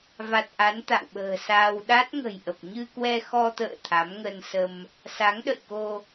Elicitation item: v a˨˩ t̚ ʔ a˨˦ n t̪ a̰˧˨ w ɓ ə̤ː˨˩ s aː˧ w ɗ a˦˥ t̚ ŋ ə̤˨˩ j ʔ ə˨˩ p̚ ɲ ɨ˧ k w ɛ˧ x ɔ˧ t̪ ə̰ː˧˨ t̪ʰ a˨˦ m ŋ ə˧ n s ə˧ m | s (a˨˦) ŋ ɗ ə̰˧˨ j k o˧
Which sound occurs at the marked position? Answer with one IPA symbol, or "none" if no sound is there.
a˨˦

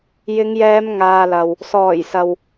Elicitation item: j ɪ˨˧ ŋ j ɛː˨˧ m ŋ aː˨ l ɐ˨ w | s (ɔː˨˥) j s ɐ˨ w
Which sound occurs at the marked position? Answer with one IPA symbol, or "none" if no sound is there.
ɔː˨˩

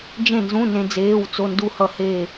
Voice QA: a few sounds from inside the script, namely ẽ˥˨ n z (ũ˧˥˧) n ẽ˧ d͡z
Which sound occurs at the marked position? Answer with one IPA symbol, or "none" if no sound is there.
ũ˧˥˧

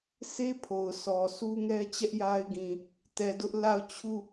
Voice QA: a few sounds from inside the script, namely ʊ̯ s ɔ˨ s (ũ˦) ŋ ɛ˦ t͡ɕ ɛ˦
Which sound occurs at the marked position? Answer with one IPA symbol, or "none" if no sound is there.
u˦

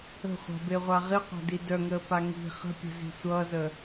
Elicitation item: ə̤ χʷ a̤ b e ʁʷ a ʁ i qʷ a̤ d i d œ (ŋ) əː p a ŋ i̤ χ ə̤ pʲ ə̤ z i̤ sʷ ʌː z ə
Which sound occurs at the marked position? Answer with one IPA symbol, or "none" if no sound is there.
ŋ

